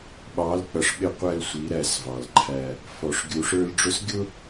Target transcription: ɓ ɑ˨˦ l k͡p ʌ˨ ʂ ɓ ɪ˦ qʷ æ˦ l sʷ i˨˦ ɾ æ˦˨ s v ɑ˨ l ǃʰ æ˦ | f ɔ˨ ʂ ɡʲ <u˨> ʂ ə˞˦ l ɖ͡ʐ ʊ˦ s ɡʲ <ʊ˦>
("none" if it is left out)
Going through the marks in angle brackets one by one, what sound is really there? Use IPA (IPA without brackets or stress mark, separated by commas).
u˨, ʊ˦